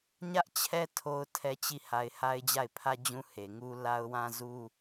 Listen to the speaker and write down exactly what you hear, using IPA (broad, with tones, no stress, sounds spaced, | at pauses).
ɲ ä˦ ʔ t͡ɕʰ ɛ˦ tʰ o˦ ʊ̯ tʰ ɛ˦ t͡ɕ i˦˨ h a˨ ɪ̯ h a˦ ɪ̯ d͡ʑ a˦˨ ɪ̯ pʰ ä˦ d͡ʑ ũ˦ h e˨ ŋ u˦ l a˦ ʊ̯ w ã˦ z u˦